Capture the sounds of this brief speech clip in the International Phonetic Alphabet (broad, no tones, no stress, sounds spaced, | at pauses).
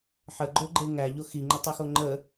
ħ ə ɡ͡ǃ o ɡ͡ǃ e ŋ æ ʎ o x i ŋ͡ǃ ə tˤ ɵ x o ŋ͡ǃ ə